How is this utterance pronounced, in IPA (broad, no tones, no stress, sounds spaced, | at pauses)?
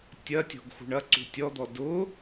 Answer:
tʲ ɐ tʲ ɔ̤ ɡ x ṳ ɳ ɐ ǀ ṳ tʲ ɔ d̪ ɔ d ʊ